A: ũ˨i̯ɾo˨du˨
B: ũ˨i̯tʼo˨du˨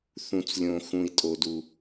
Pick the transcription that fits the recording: B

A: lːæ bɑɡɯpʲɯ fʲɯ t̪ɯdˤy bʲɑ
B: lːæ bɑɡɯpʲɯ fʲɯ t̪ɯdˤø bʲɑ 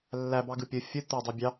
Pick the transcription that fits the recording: A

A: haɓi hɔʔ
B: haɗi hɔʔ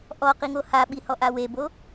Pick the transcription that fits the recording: A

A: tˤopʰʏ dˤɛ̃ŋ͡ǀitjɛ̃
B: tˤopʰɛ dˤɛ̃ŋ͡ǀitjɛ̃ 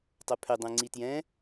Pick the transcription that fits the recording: A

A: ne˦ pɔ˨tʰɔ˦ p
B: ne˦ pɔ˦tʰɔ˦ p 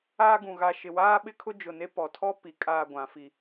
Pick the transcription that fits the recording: A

